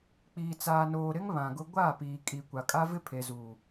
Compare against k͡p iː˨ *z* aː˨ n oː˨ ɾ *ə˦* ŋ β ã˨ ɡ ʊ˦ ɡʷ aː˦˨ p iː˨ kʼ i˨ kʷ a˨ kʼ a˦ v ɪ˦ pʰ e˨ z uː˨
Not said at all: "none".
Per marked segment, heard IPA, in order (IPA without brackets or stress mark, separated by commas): t͡s, ɪ˦